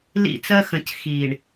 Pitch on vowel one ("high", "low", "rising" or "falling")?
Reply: falling